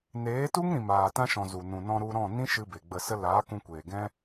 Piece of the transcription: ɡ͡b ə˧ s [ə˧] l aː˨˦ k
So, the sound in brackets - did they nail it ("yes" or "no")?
no